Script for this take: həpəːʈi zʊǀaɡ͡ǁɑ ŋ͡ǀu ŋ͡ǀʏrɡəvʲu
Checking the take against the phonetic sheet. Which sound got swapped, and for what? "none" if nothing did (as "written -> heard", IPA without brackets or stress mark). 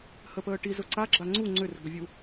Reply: ɑ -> a